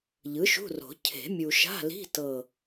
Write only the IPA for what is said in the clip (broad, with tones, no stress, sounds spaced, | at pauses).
ʎ ɯ˩˥ ʃ ṳ˧˥˧ r o̤˨˩˦ cʰ e̤˨˩˦ mʲ u˨ ʃ a̤˧˥˧ l i̤˧˥˧ t ɤ˦˨